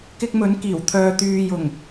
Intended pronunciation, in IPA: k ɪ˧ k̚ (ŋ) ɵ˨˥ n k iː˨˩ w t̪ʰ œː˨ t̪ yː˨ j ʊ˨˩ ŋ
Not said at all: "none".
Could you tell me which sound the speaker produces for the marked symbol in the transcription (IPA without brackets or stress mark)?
m